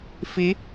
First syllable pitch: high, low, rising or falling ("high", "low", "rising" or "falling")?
rising